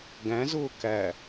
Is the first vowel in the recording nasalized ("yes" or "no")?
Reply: yes